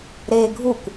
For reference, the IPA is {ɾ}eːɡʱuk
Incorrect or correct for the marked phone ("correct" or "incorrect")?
correct